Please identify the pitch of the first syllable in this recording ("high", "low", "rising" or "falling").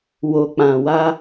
low